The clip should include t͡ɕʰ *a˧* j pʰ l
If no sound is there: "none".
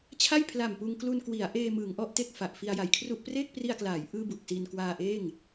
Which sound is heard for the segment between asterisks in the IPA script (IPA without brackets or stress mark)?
a˥˩